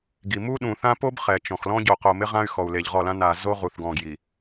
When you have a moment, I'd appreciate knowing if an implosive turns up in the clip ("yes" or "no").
yes